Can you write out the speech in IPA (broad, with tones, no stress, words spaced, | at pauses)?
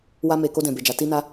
wa˧me˨ ko˧dɛ̃˨be˨d͡ʒa˨ ti˧na˧